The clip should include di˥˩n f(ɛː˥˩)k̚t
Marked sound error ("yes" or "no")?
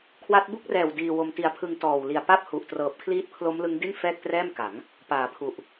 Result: no